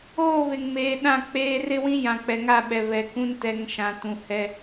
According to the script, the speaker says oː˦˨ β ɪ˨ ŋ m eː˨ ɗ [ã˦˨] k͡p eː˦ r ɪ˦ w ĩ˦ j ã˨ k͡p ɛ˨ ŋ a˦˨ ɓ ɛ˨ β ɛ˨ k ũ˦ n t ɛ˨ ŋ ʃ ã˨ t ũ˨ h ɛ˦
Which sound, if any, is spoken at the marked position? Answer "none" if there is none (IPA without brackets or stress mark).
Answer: ã˦˨